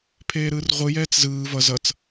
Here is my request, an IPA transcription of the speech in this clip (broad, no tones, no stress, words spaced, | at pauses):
pʰeːɾɯːrʁʷɯ jɛːt͡szɯː vʌ zʌt͡s